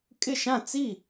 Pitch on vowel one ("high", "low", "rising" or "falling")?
falling